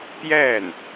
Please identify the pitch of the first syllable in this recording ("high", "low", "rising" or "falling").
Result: falling